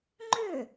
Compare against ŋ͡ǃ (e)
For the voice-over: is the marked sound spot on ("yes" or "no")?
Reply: no